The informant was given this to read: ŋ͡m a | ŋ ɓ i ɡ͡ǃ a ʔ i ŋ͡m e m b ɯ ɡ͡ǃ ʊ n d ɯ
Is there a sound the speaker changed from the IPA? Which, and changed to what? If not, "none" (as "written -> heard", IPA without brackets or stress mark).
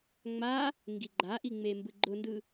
ɓ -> ɡ